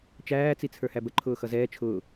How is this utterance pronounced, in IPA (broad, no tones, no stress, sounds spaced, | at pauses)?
t͡ʃ æː t͡s i t͡sʰ ə˞ h æ b ə ǃʰ ʊː x ʌ z ɛː t͡ʃʰ ʊː